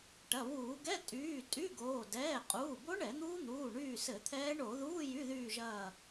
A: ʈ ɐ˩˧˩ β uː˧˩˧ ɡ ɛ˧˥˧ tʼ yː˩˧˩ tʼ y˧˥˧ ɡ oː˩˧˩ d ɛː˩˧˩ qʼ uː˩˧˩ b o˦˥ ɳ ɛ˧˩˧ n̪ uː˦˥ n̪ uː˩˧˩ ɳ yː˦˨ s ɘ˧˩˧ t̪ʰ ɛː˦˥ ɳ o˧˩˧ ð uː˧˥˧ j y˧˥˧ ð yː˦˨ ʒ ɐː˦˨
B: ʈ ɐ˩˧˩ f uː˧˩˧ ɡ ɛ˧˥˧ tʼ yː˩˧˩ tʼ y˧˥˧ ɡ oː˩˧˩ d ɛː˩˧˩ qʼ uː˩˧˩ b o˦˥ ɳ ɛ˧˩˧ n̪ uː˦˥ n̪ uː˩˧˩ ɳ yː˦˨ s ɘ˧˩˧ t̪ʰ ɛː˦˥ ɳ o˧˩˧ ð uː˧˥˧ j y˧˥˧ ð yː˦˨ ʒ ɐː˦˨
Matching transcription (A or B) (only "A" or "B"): A